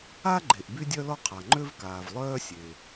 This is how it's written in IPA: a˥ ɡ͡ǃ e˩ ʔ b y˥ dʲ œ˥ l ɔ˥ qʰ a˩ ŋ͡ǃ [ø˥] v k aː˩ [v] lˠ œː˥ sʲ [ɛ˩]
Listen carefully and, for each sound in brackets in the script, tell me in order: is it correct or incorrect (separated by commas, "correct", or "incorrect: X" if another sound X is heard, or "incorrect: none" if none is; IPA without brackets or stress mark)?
correct, correct, incorrect: e˩